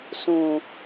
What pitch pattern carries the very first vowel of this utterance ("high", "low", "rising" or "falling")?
low